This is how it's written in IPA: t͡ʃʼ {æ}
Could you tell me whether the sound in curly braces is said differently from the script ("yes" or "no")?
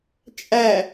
no